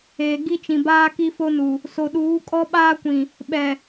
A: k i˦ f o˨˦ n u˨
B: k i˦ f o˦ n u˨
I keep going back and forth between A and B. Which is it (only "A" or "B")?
B